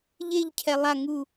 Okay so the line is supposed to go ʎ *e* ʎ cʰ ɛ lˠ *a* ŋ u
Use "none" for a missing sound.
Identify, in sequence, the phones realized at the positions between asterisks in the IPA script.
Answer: e, a

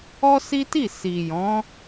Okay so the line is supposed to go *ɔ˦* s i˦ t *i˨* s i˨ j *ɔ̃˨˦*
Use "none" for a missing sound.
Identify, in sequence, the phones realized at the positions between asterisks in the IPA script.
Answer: ɔ˦, i˦˨, ɔ̃˨˦

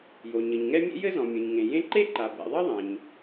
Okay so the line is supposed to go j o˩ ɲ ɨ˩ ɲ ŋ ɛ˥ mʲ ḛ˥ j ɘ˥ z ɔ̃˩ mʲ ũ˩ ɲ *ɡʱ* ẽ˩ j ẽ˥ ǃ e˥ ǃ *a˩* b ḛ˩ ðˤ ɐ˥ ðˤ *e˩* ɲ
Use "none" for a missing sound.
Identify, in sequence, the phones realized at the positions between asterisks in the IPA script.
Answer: ŋ, a˩, ẽ˩

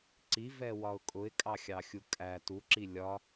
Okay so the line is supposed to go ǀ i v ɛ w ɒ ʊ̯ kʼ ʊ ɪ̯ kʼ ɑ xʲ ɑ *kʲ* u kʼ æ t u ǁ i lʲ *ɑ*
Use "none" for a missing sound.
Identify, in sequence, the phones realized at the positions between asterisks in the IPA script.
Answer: xʲ, ɒ

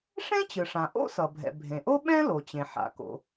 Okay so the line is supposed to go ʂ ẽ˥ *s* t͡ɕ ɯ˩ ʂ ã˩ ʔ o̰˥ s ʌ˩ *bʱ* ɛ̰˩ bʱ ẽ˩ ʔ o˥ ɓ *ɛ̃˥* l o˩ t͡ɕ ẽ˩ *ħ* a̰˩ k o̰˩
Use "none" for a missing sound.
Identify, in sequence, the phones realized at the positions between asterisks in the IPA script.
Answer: none, bʱ, ɛ̃˥, ħ

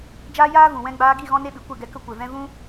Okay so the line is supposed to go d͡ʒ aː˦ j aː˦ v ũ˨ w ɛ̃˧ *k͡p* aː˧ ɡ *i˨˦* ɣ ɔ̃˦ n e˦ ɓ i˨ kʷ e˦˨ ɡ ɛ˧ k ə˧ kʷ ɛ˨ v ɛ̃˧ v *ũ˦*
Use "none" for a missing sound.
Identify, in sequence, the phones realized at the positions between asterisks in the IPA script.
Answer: ɡ͡b, i˦˨, ũ˦

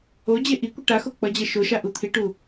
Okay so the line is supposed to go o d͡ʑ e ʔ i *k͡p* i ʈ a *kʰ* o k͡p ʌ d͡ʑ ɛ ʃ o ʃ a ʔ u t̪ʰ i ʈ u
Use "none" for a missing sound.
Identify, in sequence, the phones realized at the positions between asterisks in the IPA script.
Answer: kʷ, x

